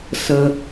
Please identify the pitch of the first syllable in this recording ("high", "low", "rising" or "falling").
low